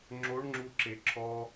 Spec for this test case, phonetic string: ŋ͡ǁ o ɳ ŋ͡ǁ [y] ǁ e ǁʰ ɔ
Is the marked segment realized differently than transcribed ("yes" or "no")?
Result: yes